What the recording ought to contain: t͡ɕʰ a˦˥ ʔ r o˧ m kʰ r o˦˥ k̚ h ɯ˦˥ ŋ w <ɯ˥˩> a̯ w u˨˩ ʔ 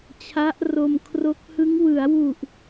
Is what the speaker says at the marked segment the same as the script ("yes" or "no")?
no